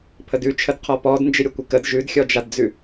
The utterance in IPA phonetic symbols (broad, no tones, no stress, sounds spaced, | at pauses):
pʰ ə d ʉ t͡ʃʰ ə d qʰ ɔ p ɔ d n d͡ʒ ɪ ɾʲ ʌ kʷ ɪ k ə d ʒ ʉ d xʲ ɔ d͡ʒ a d d͡z ʉ